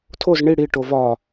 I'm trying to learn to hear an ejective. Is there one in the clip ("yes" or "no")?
no